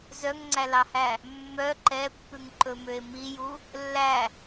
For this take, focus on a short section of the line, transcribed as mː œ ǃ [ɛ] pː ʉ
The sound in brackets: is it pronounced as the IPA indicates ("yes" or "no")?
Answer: yes